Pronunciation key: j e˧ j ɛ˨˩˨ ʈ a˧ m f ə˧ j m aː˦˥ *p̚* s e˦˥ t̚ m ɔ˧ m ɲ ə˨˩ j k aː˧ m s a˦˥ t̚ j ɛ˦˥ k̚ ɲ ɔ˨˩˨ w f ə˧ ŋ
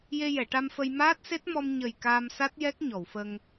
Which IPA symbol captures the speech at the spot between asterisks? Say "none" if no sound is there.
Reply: t̚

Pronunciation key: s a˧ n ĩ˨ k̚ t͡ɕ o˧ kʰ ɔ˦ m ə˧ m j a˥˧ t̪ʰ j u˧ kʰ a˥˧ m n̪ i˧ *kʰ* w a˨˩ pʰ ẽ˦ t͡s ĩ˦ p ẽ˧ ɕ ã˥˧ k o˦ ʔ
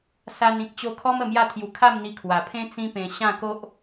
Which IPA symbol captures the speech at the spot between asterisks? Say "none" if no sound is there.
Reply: kʰ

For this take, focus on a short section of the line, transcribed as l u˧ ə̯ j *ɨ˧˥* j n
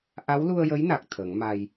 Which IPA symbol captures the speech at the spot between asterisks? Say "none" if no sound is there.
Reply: ə˧˥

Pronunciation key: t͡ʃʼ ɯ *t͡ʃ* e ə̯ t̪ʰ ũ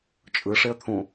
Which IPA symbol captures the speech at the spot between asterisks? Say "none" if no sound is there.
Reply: ʂ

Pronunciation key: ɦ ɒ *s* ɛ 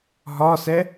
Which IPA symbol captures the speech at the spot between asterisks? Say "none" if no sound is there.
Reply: s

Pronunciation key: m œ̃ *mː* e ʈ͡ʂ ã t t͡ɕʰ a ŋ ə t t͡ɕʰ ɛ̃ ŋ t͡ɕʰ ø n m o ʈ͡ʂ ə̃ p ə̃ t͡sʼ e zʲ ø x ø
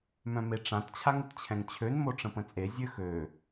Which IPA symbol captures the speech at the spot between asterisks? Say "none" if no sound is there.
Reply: m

